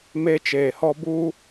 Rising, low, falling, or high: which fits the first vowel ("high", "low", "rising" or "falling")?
high